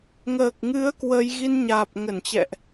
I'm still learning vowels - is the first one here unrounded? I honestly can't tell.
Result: yes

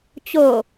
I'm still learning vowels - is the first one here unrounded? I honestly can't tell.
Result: no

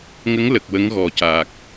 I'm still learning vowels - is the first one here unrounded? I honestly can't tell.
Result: yes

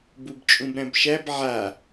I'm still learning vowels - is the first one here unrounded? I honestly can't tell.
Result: no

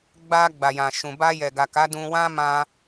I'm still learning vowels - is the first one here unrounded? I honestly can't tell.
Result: yes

